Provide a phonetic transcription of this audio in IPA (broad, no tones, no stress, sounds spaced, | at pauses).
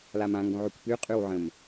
l a m ã ŋ ɡ õ ʕ y kʷ p y qʼ y w ʕ ə̃ m